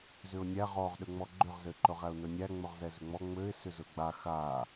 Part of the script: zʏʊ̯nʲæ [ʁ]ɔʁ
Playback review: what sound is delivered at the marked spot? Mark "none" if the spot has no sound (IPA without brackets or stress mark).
ʁ